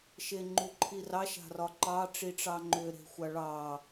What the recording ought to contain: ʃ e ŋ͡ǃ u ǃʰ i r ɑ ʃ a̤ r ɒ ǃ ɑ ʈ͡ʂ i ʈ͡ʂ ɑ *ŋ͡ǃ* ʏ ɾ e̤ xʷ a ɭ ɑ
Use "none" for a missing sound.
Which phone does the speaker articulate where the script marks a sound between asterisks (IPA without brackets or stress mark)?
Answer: ŋ͡ǃ